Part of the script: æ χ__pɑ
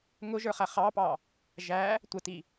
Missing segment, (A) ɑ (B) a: A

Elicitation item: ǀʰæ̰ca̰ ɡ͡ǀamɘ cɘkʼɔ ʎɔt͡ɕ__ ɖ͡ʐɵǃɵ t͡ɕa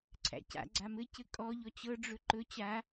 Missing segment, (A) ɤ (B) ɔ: A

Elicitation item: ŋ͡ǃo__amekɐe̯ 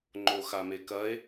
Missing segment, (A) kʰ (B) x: B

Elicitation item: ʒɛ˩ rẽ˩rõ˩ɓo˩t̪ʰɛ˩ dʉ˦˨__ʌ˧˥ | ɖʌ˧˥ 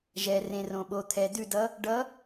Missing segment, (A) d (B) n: A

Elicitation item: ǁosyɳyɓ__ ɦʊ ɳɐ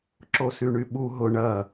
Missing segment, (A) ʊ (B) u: B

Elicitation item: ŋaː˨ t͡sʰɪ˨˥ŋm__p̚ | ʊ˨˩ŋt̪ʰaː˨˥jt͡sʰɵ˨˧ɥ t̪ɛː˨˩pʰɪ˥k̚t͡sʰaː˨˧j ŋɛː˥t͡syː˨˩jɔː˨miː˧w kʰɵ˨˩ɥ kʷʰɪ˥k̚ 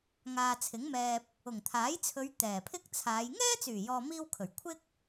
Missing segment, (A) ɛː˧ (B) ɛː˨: A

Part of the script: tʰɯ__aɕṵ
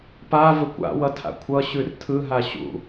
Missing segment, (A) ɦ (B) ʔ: A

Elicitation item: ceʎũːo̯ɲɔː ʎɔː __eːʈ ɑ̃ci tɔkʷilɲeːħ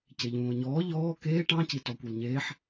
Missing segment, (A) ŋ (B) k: B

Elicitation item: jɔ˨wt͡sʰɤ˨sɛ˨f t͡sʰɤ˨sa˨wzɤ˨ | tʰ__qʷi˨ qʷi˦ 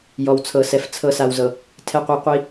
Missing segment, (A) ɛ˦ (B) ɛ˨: B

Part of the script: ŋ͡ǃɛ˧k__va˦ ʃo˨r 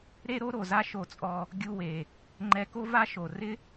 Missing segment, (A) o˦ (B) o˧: A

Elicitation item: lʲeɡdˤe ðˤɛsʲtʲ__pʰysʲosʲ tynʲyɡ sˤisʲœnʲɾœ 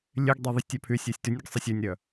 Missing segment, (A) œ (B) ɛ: A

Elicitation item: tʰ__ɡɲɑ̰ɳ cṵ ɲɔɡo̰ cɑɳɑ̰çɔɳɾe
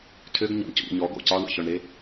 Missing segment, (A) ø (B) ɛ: A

